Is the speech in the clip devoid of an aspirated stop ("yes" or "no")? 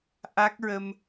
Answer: yes